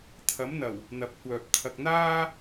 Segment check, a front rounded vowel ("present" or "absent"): present